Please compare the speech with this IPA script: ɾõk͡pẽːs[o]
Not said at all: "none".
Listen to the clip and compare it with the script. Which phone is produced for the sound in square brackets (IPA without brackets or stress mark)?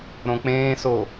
o